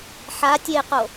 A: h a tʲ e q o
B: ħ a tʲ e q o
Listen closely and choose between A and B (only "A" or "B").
B